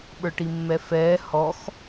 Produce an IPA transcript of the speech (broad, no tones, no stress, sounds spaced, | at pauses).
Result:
ɓ ə˞ ʈ i mː ɛ f ɛː h ɔ x